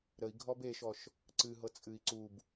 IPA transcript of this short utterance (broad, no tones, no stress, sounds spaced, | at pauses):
ɾ ə i̯ ɡʱ ɔ b e ʃ ɔ ʃ | ǀ ɨ ɦ ɤ t͡sʼ ɨ i̯ ǀ u b